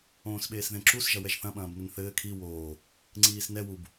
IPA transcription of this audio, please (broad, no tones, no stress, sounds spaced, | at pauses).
õː s ɓ eː s ð ẽ ǁ u s ʒ ɐ w ɛ ʒ θ ɐ̃ ɓ ɐ̃ː b n ɘ n θ ɘː kʰ i w oː | ŋ͡ǀ iː s n ɛ w u b